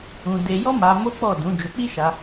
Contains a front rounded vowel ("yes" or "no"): no